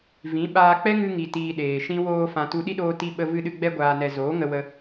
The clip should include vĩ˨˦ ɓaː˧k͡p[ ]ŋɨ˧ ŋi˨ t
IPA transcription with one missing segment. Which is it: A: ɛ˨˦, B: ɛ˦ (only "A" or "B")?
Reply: B